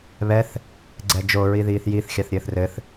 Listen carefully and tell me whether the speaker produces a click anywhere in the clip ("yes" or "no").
yes